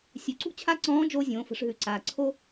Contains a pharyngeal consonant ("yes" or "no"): no